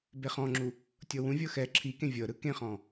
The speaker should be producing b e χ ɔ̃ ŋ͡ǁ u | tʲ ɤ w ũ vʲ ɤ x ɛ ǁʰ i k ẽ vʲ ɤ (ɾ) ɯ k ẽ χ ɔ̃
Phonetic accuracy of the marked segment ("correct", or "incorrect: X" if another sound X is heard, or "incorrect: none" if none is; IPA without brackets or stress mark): correct